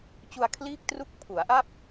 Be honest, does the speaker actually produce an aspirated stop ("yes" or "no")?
yes